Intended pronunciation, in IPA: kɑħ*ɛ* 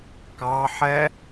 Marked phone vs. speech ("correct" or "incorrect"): correct